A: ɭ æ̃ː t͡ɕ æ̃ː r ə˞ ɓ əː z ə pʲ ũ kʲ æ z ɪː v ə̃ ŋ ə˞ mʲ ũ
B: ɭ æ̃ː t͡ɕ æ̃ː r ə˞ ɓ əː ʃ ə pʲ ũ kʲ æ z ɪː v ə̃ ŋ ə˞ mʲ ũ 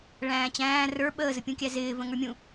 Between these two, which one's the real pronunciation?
A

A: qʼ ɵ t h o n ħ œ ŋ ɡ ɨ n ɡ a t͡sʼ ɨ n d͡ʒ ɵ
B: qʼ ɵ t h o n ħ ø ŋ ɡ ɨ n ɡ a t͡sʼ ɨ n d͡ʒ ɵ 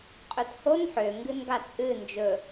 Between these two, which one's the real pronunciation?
B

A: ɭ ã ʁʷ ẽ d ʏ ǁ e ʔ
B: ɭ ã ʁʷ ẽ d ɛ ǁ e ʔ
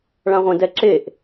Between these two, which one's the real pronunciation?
B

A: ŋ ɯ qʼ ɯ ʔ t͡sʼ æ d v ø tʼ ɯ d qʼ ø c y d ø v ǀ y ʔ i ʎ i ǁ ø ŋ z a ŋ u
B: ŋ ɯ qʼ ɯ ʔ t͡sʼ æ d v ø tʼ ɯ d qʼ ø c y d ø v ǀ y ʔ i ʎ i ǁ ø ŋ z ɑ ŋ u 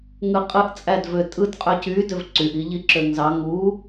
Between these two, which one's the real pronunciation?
B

